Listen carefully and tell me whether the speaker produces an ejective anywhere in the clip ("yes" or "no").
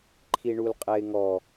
yes